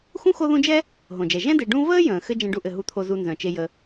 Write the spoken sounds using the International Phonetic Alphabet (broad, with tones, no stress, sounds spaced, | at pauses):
x ũ˥ x o˦ ð ũ˦ d͡ʒ ɛ˥ | ɦ õ˩ d͡ʒ ɛ˩ ʒ ɛ̃˦ d e˨ ɖ ũ˦ v əː˥ j ə̃ː˩ x ɘ˦ d͡ʒ ɛ̃˦ ɖ u˦ ʔ ɘ˨ ɦ u˨ t̪ʰ o˨ z u˨ n z œ̃˩ t͡ʃ e˨ j ə˨